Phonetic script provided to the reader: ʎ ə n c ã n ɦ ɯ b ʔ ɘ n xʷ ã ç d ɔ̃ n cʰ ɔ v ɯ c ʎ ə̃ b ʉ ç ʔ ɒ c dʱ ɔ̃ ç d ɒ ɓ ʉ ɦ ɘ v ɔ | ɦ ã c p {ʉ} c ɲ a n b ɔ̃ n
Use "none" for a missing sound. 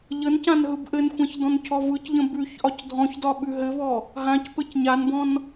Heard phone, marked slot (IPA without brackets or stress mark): ɘ